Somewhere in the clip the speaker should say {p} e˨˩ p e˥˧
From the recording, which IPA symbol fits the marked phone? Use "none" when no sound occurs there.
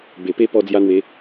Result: b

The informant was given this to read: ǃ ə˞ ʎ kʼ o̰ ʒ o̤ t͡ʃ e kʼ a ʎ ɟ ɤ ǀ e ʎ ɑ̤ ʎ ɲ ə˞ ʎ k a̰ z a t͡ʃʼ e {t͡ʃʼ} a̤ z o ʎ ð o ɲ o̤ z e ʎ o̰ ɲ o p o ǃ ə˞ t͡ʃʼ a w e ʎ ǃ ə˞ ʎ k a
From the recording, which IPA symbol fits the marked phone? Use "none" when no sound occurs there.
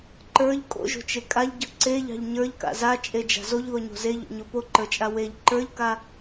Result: d͡ʒ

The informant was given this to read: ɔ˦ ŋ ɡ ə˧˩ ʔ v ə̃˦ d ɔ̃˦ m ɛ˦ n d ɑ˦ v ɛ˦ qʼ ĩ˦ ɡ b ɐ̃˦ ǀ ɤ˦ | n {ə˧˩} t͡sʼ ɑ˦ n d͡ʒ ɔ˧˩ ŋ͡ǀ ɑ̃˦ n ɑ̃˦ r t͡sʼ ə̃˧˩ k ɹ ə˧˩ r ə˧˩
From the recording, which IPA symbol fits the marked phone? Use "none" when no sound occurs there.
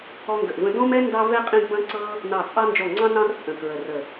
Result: ɑ˧˩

